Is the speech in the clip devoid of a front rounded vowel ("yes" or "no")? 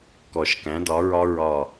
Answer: yes